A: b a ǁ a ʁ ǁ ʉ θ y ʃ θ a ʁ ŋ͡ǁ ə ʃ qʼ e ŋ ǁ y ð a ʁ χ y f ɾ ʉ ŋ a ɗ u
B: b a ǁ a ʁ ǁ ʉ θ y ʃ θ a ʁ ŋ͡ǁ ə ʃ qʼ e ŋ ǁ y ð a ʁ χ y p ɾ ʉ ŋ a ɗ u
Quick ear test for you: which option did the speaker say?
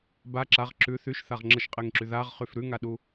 A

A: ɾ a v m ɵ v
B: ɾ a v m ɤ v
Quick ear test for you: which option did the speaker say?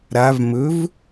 A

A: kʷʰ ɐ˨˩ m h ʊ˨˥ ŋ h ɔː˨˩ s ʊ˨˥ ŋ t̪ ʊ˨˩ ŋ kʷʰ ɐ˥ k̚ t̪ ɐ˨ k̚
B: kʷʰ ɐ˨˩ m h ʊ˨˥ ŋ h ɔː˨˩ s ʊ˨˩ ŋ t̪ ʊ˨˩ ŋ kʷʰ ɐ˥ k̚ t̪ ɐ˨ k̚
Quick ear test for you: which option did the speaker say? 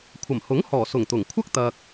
B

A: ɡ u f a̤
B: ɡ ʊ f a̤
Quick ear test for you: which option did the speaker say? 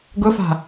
B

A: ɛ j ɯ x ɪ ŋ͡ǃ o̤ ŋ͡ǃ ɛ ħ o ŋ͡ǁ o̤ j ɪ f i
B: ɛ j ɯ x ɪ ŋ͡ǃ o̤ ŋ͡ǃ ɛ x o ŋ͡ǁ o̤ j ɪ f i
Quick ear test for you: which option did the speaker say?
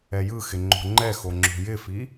B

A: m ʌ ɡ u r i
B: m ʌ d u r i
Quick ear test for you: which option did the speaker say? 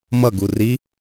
A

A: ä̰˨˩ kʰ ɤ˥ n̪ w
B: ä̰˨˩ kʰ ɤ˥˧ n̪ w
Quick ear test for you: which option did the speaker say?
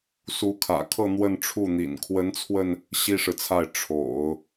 B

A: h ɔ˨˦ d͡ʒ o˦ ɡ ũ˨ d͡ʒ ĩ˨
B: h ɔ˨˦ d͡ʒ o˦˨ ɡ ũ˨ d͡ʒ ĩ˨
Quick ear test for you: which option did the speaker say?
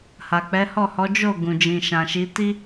B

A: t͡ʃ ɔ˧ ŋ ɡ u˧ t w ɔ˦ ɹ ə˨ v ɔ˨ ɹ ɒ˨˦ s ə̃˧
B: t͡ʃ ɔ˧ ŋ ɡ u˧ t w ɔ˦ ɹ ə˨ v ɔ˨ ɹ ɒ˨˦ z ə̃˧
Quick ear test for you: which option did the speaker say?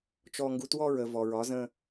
B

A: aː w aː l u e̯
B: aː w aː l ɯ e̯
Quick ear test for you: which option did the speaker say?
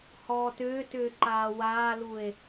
A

